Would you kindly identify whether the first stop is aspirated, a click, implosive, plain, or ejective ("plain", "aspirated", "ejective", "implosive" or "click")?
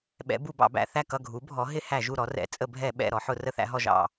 implosive